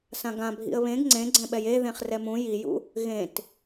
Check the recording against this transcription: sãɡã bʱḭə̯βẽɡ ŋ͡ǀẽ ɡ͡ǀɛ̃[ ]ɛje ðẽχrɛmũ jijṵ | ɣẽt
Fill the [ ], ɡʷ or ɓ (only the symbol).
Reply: ɓ